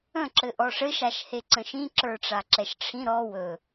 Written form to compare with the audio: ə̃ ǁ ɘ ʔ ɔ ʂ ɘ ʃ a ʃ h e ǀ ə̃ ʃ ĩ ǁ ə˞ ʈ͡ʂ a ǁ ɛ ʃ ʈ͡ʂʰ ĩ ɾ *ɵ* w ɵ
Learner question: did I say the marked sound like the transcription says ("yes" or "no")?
no